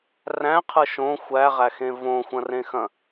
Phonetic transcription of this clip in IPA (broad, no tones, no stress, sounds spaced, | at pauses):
r æ̃ qʰ ɯ ʃ õ xʷ æ ʁ æ x ẽ v õ xʷ ɐ̃ r ẽ x ɐ̃